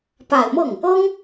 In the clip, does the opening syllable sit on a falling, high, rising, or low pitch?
low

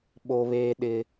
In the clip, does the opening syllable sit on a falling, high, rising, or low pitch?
high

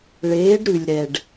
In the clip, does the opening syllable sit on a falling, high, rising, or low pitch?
rising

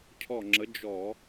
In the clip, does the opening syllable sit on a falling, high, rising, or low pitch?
falling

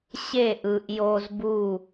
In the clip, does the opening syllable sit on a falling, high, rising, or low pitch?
falling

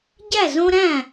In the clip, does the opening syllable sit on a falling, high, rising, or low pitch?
falling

